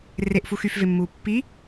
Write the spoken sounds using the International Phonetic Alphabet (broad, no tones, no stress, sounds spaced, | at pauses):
r e ʔ f u x y f v e mː uː pː i